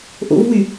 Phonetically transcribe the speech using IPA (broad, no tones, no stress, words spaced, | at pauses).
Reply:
ʔo̰vwy